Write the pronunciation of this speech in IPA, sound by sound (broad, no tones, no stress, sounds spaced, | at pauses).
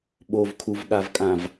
ɓ o v kʰ u v ɠ a v kʼ ã v